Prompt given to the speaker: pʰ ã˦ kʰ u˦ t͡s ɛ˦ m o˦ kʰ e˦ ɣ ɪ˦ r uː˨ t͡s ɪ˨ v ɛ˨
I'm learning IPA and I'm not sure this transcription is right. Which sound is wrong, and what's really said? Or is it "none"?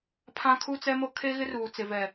none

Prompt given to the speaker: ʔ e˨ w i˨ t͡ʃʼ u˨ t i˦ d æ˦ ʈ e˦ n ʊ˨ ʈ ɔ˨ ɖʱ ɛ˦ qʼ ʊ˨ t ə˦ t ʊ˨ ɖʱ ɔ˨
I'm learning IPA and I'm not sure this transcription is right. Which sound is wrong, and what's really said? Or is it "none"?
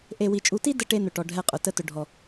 æ˦ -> ə˦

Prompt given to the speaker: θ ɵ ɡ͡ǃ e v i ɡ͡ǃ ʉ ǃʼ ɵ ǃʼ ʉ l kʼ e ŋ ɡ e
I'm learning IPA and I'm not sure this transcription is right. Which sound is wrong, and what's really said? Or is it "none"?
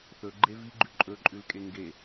none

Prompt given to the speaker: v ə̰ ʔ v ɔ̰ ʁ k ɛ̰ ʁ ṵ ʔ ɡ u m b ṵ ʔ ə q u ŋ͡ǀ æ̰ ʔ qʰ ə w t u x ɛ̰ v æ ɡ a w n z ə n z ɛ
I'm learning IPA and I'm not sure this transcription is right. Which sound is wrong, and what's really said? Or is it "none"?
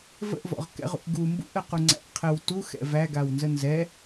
none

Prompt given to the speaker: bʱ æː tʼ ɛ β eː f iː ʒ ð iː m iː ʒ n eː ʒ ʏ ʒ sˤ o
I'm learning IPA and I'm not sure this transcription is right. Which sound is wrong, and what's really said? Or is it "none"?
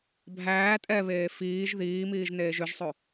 none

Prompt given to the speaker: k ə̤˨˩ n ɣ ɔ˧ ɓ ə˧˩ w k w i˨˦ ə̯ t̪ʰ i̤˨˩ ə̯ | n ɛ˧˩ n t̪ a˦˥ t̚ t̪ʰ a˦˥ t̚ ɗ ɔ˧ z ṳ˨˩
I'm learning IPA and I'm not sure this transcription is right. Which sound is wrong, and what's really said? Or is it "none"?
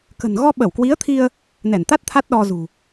i̤˨˩ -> i˧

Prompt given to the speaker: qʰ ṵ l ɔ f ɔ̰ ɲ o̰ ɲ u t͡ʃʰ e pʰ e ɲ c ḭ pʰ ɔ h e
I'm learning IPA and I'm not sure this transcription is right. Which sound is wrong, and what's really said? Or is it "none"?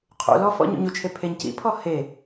none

